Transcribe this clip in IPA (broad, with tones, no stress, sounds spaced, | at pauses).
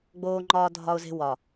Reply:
ɡ͡b oː˦ ŋ͡ǃ ɒː˦ dʱ ɒ˦ ʊ̯ z e̤˦ w ɒ˨